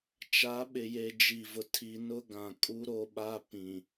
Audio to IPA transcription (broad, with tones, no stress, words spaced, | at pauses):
t͡ʃa˨˦ɓɪ˨je˨ d͡ʒi˨vʊ˨ tʰi˨ nʊ˦ɡã˨ kʼu˦ ɾo˦ɓa˦ pĩ˨